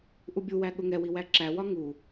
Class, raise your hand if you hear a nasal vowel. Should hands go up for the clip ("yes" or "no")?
no